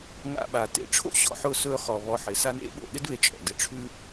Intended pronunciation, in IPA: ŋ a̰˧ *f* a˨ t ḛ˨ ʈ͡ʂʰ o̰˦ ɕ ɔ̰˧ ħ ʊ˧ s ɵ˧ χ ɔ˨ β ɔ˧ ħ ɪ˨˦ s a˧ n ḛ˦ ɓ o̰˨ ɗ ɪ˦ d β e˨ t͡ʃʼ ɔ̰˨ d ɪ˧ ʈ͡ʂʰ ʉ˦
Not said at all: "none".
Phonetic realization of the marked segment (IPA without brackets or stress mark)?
ɓ